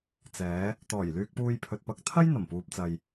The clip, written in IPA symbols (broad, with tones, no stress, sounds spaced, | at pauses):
t͡s ɛː˨˧ | t̪ ɔː˨˩ j l yː˧ k̚ p uː˧ j pʰ ɵ˨ t̚ p ɐ˧ k̚ t̪ʰ ɐ˥ j n̪ ɐ˨˩ m p uː˨ p̚ t͡s ɐ˨ j